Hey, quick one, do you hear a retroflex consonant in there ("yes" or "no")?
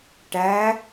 yes